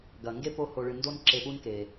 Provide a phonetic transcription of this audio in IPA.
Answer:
ɡɐ˩ŋɡe˥ po˦ho˨ɭɨ˨ ndo˦nǁe˨pu˦n ke˩

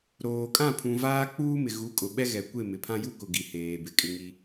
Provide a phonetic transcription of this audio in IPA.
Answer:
ɾoː˨ kʼã˦˨pʰũ˨ vaː˦ k͡puː˦mɪ˨ ɣu˨˦kʼʊ˨ ɓɛ˦ɣɛ˨ kʷe˦˨mɪ˨ pʰã˦ju˦kʊ˨ ɡi˨heː˨ bɪ˨kʼɪ˦ŋi˦

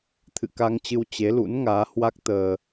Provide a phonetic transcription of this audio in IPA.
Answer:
t̪ʰɨ̰˧˨ka˧ŋt͡ɕɨ˧w t͡ɕe˨˦lṵ˧˥nŋaː˨˦ hwa˦˥k̚ t̪əː˧

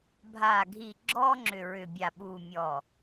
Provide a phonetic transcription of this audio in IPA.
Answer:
bʱa˨ ɡʱi˨ ɡ͡ǁɔ˦ŋ͡ǁʏ˨ɹʏ˨bʲa˨ ɓu˨mʲɔ˨

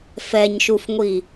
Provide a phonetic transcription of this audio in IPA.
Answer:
fɛɲʃufŋʷi

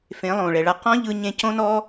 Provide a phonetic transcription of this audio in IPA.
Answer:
fẽ˨˦lˠõː˨ɭɛ˨ɭa˦ qɔ̃˦ʎɯ˧ ɲẽ˧cõ˦nɔ˦

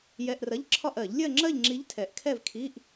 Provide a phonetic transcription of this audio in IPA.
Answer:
jɛ˧˥˧ʔrɐ˧˥˧ʎǁʰɒ˥˧ʔɜ˨˩˦ʎ lʲɜ˥˧ŋ͡ǁɜ˥˧ʎŋ͡ǁi˧˥ʎ tʰɛ˨˩˦ʔkʰɛ˥˧v kʰi˧˥˧ʔ

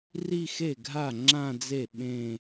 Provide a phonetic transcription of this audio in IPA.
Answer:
ri˥˧xe˥˩ɡʱa˥˩ ŋ͡ǁã˥˧d͡ze˥˩ ɓẽ˥˧

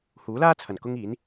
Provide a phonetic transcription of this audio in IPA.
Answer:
huː˨˥laː˥t͡sʰɐ˨˩n kʊ˧ŋ iː˨˥n

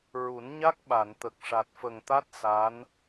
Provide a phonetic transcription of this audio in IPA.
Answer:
ɹu˨˩˦nɲa˦˥k̚ ɓa˨˩˨nt̪ə˨˩k̚ ʂa˨˩t̚fə˨˩ŋt̪a˦˥t̚ sa˧˥n

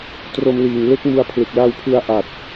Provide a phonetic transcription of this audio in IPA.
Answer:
tro˧mliː˨˩ŋ le˦˥k̚mu˧a̯pʰlɯ˨˩k̚la˧w pʰɯ˧a̯ ʔa˨˩t̚

